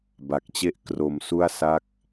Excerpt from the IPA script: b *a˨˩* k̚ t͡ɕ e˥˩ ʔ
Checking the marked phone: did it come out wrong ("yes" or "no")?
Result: no